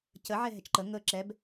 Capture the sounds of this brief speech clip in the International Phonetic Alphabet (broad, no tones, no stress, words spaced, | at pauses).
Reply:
cəʕɛ ɦɛt͡ʃǃə ŋəːǁɛb